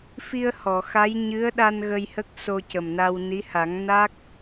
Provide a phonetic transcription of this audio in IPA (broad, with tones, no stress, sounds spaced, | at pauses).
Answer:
f i˧ ə̯ h ɔ˨˩˨ x a˧˥ j ɲ ɨ˧˥ ə̯ ɗ a˧ n ɣ ə˧ j h ə˦˥ k̚ s o˧ c ə˨˩ m n a˧ w n i˧˥ h a˨˩˦ ŋ n a˦˥ k̚